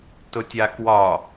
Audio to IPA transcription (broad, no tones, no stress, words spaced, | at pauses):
tʊtʲakwɒ